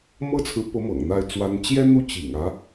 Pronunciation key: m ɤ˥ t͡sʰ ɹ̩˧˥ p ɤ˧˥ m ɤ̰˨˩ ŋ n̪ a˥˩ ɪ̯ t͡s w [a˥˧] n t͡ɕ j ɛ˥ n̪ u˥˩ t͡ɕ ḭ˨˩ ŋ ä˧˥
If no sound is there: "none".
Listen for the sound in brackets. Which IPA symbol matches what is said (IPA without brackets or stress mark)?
a˥